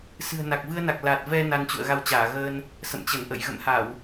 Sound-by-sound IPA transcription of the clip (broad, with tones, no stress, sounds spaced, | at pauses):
s ɨ̤˨˩ ə̯ n a˨˩ k̚ v ɨ˧ ə̯ n a˨˩ k̚ l a˨˩ t̚ v ɛ˧ n a˧ n t͡ɕ ṵ˧˨ ə̯ ɣ a˧ w t͡ɕ aː˧˩ ɣ əː˧ n | s ə̰˧˨ m t͡ɕ ə˧˩ n ʔ ə̰˧˨ j ɣ ə̰˧˨ m h a˧˩˨ w